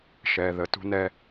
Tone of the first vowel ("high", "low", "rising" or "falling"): low